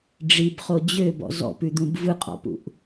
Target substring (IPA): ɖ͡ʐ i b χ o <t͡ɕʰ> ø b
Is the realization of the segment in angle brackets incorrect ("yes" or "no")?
yes